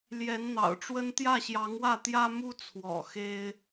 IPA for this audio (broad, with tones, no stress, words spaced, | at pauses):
ljɛ˧˥n n̪ɑ̰˨˩ʊ̯ʈ͡ʂwə˥n t̪jä˥˩ɕjɑ˧˥ŋwä˥˩t̪jä˥ mu˥t͡sʰwɔ̰˨˩ xe˥ɪ̯